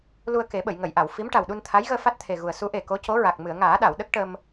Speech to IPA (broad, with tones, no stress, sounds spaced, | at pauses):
l u˧ ə̯ k e˨˩˦ ɓ ə˨˩˨ j ŋ ə˨˩˨ j ʔ a˨˩˨ w f i˧˥ m ʈ a˨˩ w ɗ u˧ n t̪ʰ a˧˥ j ɣ əː˧ f a˦˥ t̚ t̪ʰ e˨˩ ɣ u˨˩ ə̯ s u˧˥ ʔ e˨˩ k o˧˥ c o˧˥ ɹ a˨˩ k̚ m ɨ˨˩˨ ə̯ ŋ aː˨˩˦ ɗ a˨˩˨ w ɗ ə˦˥ k̚ ʈ ə˧ m